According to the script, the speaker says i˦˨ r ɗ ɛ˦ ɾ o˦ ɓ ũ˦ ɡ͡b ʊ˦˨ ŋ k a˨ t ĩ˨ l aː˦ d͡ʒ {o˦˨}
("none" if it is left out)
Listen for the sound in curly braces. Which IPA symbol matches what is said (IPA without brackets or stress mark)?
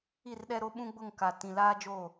o˦˨